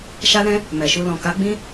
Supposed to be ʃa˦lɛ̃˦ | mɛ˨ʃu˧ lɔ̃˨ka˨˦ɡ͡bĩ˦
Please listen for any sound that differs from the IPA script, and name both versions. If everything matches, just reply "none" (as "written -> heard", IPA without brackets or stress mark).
none